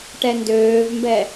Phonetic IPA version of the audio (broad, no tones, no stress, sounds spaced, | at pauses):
ʈ ɛ n d øː v m b ɛ